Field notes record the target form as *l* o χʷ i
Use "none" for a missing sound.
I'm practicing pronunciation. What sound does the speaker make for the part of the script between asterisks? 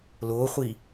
l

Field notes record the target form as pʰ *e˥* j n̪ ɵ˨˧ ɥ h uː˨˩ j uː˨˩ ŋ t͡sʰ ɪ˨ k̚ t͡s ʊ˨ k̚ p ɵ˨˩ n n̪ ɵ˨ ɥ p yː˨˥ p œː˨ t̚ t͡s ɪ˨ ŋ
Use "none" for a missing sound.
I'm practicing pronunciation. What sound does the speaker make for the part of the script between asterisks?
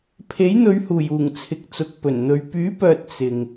e˨˥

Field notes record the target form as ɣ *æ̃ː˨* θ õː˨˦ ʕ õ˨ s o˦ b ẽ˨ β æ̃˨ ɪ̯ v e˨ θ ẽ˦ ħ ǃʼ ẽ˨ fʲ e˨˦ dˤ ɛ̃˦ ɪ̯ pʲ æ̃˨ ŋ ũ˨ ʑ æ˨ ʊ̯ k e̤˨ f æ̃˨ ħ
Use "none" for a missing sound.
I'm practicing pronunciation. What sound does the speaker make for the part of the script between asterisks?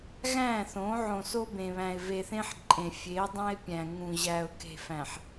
æ̃ː˦˨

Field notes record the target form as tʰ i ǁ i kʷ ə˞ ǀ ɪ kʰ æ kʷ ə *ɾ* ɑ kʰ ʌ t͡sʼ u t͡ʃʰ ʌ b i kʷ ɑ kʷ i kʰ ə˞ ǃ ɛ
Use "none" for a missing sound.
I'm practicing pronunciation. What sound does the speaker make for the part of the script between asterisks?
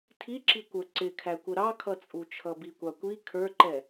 ɾ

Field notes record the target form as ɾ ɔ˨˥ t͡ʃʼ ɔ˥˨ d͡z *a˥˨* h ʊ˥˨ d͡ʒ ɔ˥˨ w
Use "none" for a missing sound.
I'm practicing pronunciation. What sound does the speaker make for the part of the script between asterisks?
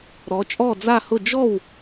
a˥˨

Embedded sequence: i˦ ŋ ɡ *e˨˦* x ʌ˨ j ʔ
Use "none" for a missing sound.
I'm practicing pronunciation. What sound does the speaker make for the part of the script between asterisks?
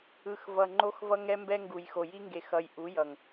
e˨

